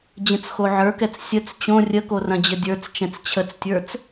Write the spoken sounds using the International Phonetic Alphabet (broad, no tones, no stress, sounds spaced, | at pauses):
d͡ʑ ə̃ t͡s x o ʕ ə˞ k ɛ t͡s sʲ ə t͡s t͡ɕ õ rʲ ə k o r ɐ̃ d͡ʑ ə dʲ ə˞ t͡s t͡ʃ ɛ̃ t͡s t͡ɕʰ ə t͡s tʲ ə˞ t͡s